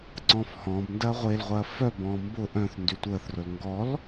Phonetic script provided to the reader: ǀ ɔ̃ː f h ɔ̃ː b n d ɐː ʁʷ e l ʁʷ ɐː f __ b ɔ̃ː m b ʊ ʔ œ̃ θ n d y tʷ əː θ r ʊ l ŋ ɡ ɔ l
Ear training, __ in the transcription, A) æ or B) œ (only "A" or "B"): B